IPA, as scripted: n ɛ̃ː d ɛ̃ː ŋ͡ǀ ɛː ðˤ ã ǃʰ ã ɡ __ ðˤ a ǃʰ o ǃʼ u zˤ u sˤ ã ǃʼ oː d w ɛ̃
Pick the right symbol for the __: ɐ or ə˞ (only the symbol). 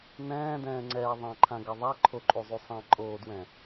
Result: ɐ